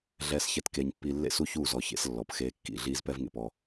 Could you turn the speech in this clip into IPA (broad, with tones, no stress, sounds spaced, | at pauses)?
ɮ ɛː˨ s ç ɛ˨ t k eː˨ ɲ pː iː˨ lː ḛ˦ s u˦ ç uː˦˨ z ɔ˨ ç ḛ˦ s lː ɔ˨ p x eː˦ kː ḭ˦˨ ɮ iː˦ z p ɛ˦ v ŋ ḛ˨ p ɔ˦